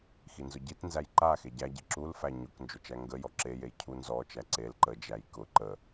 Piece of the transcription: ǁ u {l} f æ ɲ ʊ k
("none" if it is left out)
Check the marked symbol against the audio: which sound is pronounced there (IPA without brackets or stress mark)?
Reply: l